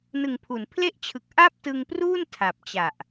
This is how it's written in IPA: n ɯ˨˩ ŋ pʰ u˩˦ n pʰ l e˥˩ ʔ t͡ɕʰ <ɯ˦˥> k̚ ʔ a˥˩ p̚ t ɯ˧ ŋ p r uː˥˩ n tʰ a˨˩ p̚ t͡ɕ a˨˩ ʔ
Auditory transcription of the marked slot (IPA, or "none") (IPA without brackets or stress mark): ɯ˨˩